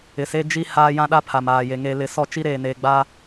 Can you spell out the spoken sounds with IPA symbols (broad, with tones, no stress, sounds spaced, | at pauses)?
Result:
ɪ˨ s e˦ d͡ʒ i˦ h aː˦ j ã˦ ɗ a˦ pʰ a˨ m aː˨ j e˨ ŋ e˨ l ɪ˨ s ɔ˦˨ t͡ʃ i˦ ɾ eː˨ n eː˨ ɡ͡b a˦